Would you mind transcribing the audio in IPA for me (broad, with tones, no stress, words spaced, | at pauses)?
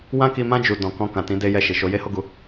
wã˦ki˧mã˦ d͡ʒu˧ dɔ̃˧kɔ̃˦ kã˧tĩ˦de˦ jɛ˧ʃi˨ʃo˧ je˦ho˦ɡu˧